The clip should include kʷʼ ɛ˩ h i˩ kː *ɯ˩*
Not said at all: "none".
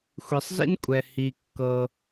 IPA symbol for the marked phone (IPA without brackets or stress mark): ɤ˩